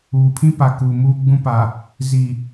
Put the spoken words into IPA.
uː˨pʰĩ˦ pa˨kuː˨ muː˦ɡ͡bũ˦pa˨ | zi˨

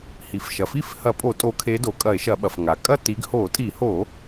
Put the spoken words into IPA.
hi˩fʃɐ˩ fi˥˨fhɐ˧˩˧pʼo˧˩˧ tʼo˨˦kʰe˨˦do˩kʼɐ˧˩˧e̯ ʃɐ˧˩˧ɓɐ˩f ŋa˩kʼɐ˥˨ti˨˦ɡ ho˧˩˧tʼi˧˩˧ho˧˩˧

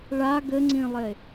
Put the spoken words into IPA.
ɭa ɡɘŋ͡ǀĩlˠe

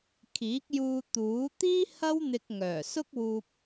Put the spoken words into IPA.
kʰiː˨˥k̚juː˧ t̪uː˨˥ t̪iː˥ hɐ˥w n̪ɪ˧k̚ŋœː˨˩ sʊ˥k̚wuː˧p̚

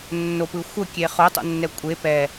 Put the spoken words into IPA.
nːopɯ xʷəkʲe χotˤo̰nːɛ kʷʼe pɛ

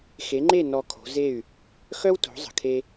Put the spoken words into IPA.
xe˩˥ŋ͡ǃe˥˩ nɔ˧kʰo̤˩˥ze˥˩y̯ | xœ˥wto̤˩˥zˤə̤˩kʰe˧

